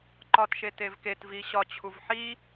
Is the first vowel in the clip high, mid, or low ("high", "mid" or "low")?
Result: low